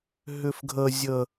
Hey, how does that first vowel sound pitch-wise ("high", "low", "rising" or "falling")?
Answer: high